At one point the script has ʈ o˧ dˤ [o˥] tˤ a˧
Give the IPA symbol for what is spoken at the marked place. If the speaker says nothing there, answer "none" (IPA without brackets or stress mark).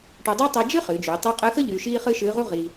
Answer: o˥